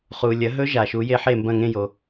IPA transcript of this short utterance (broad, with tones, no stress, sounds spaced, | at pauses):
χ uː˩ lʲ ɐ˩˥ ɦ ɵ˦˥ ʒ a˩ ʃ u˩˥ j e˦˥ ħ e˥˨ m b ɐ̃˥˨ ŋ ẽ˥˨ j o˩